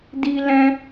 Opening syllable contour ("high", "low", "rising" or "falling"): high